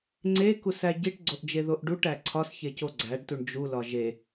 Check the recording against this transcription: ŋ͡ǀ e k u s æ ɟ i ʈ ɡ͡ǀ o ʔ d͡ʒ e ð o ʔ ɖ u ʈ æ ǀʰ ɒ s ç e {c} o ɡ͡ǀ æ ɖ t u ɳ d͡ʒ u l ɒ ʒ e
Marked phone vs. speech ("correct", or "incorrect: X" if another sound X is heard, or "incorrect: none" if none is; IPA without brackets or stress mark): correct